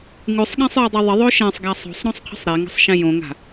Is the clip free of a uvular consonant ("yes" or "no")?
no